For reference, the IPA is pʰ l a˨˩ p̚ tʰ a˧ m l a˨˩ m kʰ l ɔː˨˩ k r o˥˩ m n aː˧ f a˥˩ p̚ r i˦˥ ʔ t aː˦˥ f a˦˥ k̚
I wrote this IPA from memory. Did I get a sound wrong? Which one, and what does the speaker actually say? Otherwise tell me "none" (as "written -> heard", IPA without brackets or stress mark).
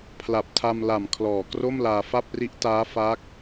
n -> l